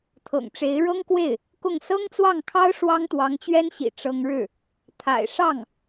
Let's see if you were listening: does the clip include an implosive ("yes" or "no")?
no